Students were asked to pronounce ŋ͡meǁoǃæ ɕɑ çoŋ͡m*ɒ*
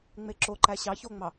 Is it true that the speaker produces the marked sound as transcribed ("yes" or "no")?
no